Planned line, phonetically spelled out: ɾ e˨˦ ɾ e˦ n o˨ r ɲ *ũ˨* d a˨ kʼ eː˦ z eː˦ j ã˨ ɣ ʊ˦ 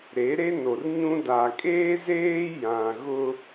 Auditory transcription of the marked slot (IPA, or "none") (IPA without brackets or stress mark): ũ˦